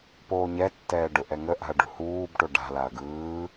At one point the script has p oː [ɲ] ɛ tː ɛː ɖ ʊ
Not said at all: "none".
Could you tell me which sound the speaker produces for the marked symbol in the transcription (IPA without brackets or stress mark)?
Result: ɲ